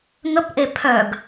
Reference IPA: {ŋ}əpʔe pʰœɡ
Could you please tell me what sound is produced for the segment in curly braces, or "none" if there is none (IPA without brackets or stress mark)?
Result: ŋ